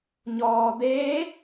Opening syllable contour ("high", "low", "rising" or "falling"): low